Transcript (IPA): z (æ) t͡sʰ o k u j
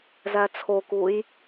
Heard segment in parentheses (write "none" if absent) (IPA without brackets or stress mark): æ